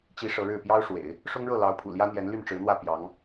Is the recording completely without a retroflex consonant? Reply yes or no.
no